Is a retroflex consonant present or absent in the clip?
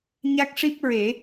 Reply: present